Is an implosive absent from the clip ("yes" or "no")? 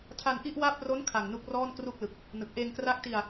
yes